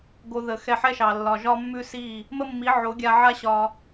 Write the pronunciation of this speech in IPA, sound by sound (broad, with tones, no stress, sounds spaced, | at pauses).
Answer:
ɡ o˧ ð ə˨ x ɛ˧ ħ ɛ˦ ʃ ɑ˨ lː ɒ˨ ʒ ɒ˦ mː ʉ˦ s i˦˨ | m ə˦ mː i˨˦ ʕ o˨˦ ɡʲ a˧ ʕ a˦ ɕ ɒ˧